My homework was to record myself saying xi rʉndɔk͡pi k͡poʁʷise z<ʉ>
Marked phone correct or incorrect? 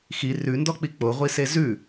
correct